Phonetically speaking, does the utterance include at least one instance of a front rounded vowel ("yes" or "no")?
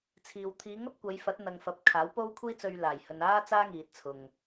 no